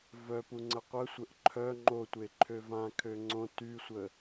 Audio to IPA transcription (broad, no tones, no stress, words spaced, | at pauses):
vœpu ŋ͡ǀəqʷəsʷəʔ ǃʰœ ŋ͡ǃotʷe ǃʰøvãkʰø ŋ͡ǀõ tysʷə